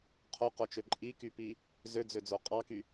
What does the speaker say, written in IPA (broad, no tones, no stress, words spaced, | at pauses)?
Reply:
qʰoqot͡ʃø ǃʼikypi | zød͡zød͡zo qʼɑky